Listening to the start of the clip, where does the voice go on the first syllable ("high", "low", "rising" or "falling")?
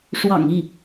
low